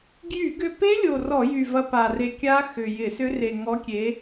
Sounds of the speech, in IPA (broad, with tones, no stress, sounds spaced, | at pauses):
ɡ j y˧˩˧ ɡ ʏ˧ p e˦˥ lʲ o˨˩ r ɔ˧˩˧ j y˨˩ v ɐ˧ p a˨˩ r e˧ kʲ a˦˥ x ʏ˨˩ j ɪ˧˩˧ s ʏ˦˥ r e˨˩ ŋ ɔ˨˥ kʲ e˨˥